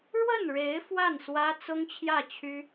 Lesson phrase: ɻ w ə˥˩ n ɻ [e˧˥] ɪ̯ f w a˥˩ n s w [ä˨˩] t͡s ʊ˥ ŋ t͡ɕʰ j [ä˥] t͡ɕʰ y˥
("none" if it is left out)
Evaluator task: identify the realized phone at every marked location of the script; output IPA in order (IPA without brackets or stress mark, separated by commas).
e˧˥, ä˥, ä˥˩